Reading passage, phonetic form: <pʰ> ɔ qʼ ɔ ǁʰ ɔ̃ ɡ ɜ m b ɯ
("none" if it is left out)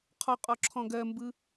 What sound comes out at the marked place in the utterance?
qʰ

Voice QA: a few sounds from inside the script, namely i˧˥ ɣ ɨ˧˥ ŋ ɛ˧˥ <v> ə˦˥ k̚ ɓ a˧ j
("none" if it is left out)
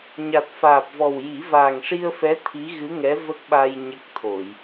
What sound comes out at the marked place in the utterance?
v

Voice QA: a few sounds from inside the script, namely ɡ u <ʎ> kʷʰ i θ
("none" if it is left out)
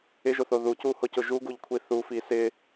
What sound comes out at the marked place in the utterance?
ʎ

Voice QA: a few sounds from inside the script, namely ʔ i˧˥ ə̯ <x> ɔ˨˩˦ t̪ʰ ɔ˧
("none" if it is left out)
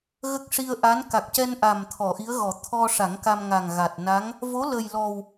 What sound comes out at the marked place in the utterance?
ɣ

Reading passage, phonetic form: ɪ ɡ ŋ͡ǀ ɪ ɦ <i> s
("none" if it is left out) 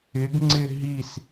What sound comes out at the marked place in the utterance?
i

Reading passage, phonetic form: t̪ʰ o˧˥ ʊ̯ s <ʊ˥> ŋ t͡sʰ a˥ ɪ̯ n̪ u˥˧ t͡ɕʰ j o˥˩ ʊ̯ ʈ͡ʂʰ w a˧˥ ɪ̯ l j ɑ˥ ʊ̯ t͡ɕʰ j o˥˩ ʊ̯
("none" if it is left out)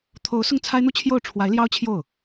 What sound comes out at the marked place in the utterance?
ʊ˥˩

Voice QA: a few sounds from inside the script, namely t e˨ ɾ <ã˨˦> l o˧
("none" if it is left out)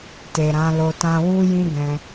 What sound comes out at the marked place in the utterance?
ã˨˦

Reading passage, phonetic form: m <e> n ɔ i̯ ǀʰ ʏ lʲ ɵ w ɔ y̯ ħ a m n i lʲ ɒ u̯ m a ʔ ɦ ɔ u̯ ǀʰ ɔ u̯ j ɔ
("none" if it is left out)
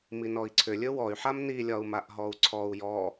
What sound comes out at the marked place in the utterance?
i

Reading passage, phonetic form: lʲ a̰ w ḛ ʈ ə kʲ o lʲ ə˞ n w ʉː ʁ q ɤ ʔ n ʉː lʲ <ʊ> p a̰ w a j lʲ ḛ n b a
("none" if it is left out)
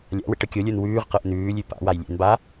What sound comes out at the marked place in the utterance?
ʉ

